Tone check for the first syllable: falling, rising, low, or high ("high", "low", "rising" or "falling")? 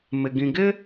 low